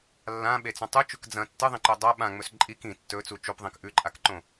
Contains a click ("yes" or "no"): yes